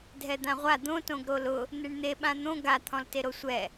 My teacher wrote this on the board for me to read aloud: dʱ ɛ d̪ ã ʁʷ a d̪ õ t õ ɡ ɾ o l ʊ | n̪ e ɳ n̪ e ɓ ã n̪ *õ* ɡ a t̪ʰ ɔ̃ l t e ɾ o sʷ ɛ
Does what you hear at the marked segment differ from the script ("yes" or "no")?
no